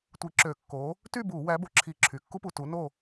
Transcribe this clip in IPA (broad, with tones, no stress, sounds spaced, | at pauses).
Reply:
tʷ i˧˩˧ ǁ ø˧˩˧ kː o˨˥ | t y˥˨ b u˧˩˧ w æ˨˥ b o˩ ǁʰ i˧˩˧ ǁʰ y˩ kː u˥ p u˩˧˩ t u˨˥ n o˥˨